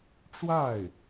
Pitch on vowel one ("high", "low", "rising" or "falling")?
falling